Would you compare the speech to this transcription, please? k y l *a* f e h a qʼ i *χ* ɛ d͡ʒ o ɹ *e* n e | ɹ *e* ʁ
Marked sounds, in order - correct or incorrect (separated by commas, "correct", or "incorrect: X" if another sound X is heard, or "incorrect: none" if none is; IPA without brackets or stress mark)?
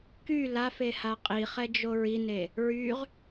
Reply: correct, correct, incorrect: i, incorrect: y